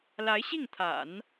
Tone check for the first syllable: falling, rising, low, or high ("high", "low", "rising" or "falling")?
rising